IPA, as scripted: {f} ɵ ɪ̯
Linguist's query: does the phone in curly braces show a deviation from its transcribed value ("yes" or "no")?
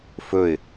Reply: no